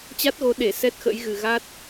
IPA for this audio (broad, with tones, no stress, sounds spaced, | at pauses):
t͡ɕ a˦˥ t̚ ɣ o˨˦ ɗ e˧˩ s ɛ˦˥ t̚ x ə̰˧˥ j ɣ ɨ˨˩ ɣ a˦˥ t̚